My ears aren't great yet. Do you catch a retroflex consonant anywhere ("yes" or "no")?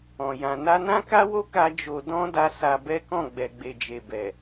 no